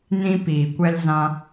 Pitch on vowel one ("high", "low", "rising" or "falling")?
high